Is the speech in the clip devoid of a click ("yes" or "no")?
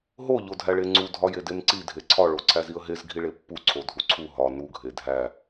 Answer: no